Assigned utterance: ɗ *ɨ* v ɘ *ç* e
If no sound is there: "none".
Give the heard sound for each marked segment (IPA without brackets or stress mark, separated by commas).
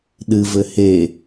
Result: ɨ, h